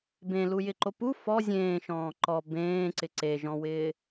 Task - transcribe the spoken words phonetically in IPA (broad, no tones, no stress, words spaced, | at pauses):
bẽlujɪǃo pu fɔ zʲẽːʃɔ̃ː ǃɔ bẽːǀɪ ǀeʒɔ̃wɪː